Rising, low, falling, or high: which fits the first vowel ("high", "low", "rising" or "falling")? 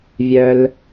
low